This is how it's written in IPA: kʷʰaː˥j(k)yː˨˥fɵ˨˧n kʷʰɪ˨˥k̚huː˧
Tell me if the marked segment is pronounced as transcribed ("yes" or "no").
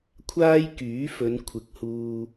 yes